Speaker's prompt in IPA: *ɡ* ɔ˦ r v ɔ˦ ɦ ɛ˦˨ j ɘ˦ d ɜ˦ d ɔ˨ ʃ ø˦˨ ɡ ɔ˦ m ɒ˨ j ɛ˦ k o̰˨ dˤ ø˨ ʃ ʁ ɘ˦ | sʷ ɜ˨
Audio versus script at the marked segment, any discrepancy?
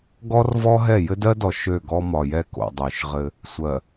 no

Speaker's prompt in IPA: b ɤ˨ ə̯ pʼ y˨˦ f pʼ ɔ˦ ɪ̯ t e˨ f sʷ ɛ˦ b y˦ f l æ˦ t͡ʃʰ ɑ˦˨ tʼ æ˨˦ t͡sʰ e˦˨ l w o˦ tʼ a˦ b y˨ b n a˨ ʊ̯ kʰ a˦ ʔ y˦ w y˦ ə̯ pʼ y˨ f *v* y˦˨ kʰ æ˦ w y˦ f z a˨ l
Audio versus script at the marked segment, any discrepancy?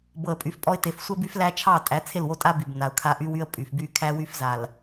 yes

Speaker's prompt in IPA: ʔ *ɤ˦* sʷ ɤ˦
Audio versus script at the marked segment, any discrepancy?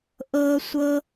no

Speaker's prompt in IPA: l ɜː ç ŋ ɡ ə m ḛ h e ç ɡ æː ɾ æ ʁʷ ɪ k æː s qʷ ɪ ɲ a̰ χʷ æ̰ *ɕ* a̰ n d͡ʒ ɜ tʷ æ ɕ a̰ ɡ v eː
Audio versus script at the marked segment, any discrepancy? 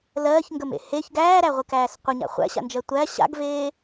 no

